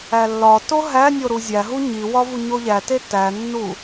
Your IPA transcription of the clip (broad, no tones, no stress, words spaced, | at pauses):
ælːɒto ɦæ nʲoɾuzʲæɦu ɲiwɒ vuɲoʎæte tænːu